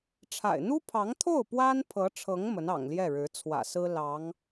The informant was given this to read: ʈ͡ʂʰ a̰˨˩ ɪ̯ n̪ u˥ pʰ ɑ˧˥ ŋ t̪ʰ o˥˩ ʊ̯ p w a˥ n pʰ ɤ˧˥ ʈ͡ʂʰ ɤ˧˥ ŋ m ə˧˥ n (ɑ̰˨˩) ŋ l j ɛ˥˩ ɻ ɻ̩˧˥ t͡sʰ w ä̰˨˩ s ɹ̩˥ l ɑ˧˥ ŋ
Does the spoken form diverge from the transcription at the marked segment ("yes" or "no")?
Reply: no